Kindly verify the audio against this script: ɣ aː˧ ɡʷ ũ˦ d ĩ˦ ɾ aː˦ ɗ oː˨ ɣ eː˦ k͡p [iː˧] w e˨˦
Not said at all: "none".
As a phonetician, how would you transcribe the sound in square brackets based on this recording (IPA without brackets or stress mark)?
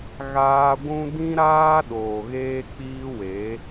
iː˦